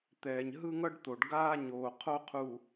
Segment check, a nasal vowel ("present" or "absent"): absent